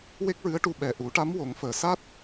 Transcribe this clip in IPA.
w e˦˥ k̚ ɹ ɨ˧˥ ə̯ ʈ u˧ ɓ ɛ˨˩ ʔ u˨˩˦ ʈ a˧˥ m w o˨˩˦ ŋ f əː˨˩ s a˦˥ t̚

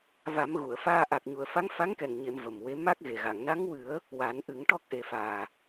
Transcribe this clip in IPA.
v a˨˩˦ m ɣ u˨˩˨ ə̯ f aː˧ ʔ a˨˩ k̚ ɲ u˨˩˨ ə̯ f a˧˥ ŋ f a˧˥ ŋ k ɛ˨˩ ŋ ɲ e˨˩˨ m v ə˨˩ m w e˧˥ m a˦˥ k̚ ɣ e˨˩ ɣ a˨˩˨ ŋ n a˧˥ ŋ w ɨ˨˩˦ ə̯ | w a˨˩˦ n ʔ ɨ˨˩˦ ŋ ʈ ɔ˦˥ k̚ ʔ e˨˩ f aː˨˩

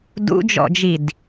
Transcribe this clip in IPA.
d ṵ d͡ʒ ɔ̰ d͡ʒ i d

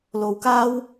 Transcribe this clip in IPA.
l o˧ w k aː˥ w

